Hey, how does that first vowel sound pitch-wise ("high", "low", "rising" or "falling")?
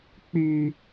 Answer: high